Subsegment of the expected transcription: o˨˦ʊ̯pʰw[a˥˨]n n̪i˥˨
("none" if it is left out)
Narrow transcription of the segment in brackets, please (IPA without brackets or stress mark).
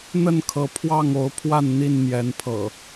a˥˨